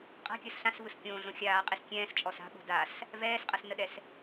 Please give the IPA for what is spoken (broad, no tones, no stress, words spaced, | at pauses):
qʼa̤kʲəːs ɬãsvɯs kʲõːɮõ xʲaːqʼis kʲɛ̃ːst͡ʃʼɔs a̤ɓo̤ das | vɛːsqʼɐsnəɗɛs